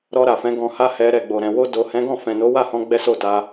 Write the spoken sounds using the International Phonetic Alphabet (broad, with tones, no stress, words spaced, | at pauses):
ɾɔ˧ɾa˨fɛ̃˨˦ ɡɔ̃˧ha˦hɛ˧ ɾɛ˨ɡ͡bo˨ɾɛ̃˨ wo˧do˨hɛ̃˨˦ɡɔ̃˦˨ fɛ̃˨no˨˦ wa˦˨hɔ̃˧ ɡ͡bɛ˦so˦˨ ta˨˦